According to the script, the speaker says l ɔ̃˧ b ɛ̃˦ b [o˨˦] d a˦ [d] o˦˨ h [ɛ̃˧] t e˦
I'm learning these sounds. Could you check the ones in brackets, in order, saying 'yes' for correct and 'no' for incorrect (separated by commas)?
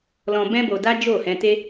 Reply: no, no, yes